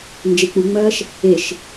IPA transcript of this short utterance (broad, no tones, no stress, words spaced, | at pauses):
nd͡ʒek͡puŋ͡mɐːʃ | eʃ